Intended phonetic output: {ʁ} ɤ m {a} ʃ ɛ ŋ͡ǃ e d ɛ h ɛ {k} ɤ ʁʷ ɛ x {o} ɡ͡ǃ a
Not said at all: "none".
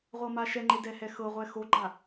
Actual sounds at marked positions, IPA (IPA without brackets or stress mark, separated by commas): ʁʷ, a, x, o